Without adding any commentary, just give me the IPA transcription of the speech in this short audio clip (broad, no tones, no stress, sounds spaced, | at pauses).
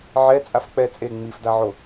ʕ ɛ t͡sʼ a f k͡p ɛ t͡sʼ e ŋ͡m i f d a ʕ o